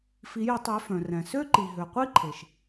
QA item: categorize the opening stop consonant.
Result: plain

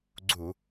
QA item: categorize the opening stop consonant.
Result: click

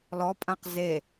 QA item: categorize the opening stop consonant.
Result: ejective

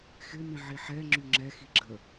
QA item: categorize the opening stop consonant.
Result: click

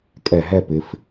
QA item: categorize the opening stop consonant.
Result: ejective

